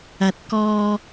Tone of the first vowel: low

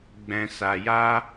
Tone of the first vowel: low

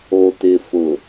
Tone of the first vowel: low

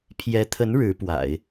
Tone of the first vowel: rising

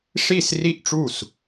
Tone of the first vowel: falling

